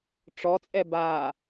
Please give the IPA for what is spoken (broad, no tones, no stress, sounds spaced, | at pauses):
ʈ͡ʂ ɔ t͡sʼ ɛ b a